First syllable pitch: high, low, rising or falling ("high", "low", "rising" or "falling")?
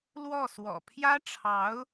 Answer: falling